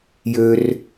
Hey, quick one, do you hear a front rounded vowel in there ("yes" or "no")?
yes